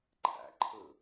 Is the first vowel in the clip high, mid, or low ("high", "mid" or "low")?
low